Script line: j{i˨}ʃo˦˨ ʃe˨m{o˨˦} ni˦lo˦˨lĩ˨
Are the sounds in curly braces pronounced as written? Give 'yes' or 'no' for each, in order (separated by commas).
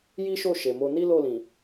no, no